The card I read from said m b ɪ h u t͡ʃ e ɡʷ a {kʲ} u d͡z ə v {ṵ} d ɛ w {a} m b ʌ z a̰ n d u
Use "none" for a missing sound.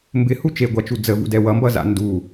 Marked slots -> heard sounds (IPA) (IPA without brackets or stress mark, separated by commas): t͡ʃ, ṵ, ʌ